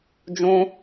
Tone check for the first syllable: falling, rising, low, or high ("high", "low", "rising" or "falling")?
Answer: high